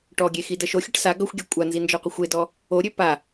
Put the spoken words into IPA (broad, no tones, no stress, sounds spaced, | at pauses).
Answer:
ʈ ɔ ɡʲ e x i d ə ʃ o xʲ ə ʈ s a ɡ ʌ xʷ ɡʲ e kʷʼ a n z i n d͡ʒ ɔ qʷ ə xʷ e d ɔ | o ɾʲ ø p a